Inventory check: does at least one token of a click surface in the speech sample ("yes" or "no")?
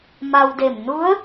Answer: no